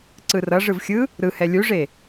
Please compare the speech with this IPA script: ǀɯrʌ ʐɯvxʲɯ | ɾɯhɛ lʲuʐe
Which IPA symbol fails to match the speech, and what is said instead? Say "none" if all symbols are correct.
none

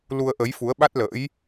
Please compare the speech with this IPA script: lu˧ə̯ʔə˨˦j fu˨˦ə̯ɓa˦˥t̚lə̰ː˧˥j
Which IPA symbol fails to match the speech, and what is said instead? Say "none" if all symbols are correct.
none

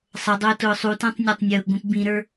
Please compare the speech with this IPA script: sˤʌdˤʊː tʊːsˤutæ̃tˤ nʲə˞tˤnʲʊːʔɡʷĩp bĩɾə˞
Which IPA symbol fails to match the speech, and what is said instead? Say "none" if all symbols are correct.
none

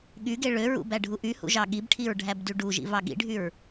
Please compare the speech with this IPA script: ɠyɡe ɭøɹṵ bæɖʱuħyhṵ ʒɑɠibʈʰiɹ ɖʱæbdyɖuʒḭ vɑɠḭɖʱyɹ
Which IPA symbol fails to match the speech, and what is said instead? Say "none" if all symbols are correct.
ħ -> ʔ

